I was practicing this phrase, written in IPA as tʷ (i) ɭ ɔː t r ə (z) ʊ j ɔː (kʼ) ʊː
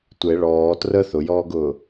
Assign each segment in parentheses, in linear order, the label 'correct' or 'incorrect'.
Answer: incorrect, incorrect, incorrect

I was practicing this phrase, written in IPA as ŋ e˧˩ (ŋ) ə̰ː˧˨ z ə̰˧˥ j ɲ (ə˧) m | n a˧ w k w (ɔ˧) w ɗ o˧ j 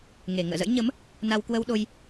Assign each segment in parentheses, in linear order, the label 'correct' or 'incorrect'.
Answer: correct, incorrect, incorrect

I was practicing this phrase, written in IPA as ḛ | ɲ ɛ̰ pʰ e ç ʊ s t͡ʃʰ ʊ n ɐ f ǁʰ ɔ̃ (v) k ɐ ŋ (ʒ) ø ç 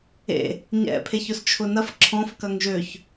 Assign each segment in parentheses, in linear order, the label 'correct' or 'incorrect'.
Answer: incorrect, correct

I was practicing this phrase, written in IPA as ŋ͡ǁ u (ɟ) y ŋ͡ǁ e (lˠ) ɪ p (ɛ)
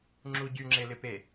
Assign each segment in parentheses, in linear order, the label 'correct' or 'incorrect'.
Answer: correct, incorrect, incorrect

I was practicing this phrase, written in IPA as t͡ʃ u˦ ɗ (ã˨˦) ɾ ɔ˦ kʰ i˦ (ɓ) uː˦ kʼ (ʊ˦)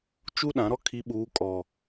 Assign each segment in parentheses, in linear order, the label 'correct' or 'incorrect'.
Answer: correct, correct, incorrect

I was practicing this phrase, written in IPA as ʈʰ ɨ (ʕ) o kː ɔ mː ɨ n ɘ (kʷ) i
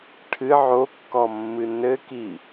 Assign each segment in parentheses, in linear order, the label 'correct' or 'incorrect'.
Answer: correct, incorrect

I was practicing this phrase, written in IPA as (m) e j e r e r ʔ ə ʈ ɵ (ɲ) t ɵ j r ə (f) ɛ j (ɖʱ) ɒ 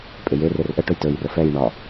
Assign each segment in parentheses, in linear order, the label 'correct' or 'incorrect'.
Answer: incorrect, incorrect, correct, incorrect

